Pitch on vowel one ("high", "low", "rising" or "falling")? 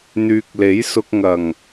low